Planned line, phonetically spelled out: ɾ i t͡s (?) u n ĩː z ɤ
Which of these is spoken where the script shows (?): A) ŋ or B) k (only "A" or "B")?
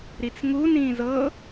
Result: A